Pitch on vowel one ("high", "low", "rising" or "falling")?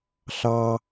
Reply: high